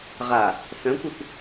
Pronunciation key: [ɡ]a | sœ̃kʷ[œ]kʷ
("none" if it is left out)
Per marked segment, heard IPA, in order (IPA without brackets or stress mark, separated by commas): ʁ, œ